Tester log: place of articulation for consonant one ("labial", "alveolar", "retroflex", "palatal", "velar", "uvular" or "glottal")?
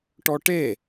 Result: retroflex